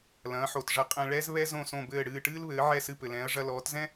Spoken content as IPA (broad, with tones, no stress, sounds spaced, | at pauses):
l ɐ̃ː˩˥ ħ o˩ t ʐ ɐ˧ qʼ ɛ̃˧ ɭ ɛ˥ z β ɛ˥ z õ˥˩ s õ˥˩ b ɘː˥˩ ɽ ɨː˥˩ ʈ ɨː˥ l β ɘː˩˥ ʕ ɛ˥˩ s ɨ˥˩ p ɘ˩ l ɛ̃ː˩˥ ɐ̯ ʐ ɐ˧ l ɔː˩˥ t z ɛ̃˥